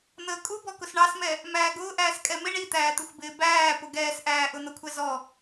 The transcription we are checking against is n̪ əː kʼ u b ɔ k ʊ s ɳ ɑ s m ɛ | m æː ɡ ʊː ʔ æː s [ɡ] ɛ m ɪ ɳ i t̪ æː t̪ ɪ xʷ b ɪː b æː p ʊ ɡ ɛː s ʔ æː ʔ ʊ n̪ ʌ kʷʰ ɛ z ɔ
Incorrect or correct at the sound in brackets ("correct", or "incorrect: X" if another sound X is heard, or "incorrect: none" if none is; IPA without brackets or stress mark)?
incorrect: kʼ